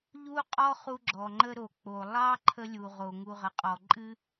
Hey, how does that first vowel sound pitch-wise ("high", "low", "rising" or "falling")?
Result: high